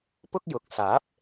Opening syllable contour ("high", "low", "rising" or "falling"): high